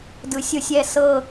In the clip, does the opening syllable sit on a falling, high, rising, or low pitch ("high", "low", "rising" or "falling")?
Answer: rising